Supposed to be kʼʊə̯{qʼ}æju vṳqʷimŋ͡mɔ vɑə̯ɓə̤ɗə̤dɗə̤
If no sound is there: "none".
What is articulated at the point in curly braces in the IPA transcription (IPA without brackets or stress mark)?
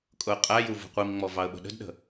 qʼ